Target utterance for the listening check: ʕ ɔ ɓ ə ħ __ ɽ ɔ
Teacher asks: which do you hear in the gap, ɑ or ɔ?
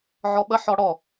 ɔ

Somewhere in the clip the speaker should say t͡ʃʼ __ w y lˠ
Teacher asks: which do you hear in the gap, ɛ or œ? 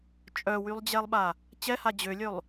œ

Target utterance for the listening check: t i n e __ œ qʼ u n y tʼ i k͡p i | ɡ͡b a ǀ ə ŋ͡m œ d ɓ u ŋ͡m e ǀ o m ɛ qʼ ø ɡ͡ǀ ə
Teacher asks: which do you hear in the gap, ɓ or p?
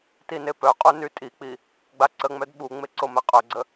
p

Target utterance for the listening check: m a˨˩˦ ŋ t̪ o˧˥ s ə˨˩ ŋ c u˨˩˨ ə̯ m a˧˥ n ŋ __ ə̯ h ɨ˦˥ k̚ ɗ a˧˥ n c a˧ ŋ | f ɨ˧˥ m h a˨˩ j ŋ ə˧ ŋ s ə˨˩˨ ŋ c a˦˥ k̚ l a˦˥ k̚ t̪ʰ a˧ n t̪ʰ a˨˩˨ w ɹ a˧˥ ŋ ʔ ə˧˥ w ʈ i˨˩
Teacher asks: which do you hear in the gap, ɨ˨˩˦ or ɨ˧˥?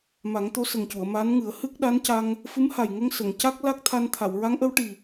ɨ˨˩˦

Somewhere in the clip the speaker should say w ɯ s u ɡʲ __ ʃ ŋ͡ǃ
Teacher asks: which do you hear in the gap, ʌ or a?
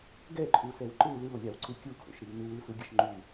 ʌ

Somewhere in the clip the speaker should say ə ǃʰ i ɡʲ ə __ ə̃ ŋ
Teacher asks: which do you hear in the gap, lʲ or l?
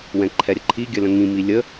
l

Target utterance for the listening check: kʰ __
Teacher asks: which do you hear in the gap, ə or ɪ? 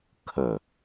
ə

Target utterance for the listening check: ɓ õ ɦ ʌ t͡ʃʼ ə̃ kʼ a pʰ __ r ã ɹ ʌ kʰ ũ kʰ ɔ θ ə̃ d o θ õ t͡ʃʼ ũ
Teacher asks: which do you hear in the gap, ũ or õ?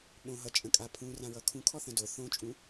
ũ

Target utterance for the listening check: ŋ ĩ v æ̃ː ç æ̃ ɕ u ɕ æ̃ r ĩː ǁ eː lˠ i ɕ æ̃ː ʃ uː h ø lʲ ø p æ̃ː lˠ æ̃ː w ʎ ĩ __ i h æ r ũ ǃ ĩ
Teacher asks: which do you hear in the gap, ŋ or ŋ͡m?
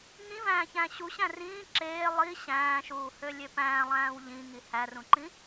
ŋ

